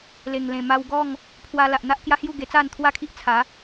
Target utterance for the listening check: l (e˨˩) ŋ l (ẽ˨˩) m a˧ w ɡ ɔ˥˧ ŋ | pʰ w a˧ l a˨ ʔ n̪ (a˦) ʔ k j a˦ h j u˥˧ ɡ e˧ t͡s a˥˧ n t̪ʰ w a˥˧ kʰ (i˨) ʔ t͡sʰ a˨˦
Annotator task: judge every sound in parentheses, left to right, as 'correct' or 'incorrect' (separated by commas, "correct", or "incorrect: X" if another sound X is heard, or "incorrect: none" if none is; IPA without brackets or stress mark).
correct, correct, correct, incorrect: i˦